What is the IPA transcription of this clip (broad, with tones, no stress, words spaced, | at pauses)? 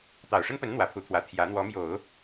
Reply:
t̪ɑ˨˩ʊ̯ʂə˥npə˧˥n n̪wä˧˥pʰu˧˥t̪ʰwä˧˥ t̪ʰjä˧˥ n̪wɔ˧˥mjo˨˩˦ʊ̯